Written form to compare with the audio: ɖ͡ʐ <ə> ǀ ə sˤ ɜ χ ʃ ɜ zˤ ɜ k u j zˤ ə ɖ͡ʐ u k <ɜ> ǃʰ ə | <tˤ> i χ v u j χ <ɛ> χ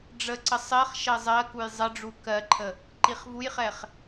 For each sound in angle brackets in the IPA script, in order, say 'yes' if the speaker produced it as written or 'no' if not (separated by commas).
yes, yes, no, yes